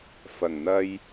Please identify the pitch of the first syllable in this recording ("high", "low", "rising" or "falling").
low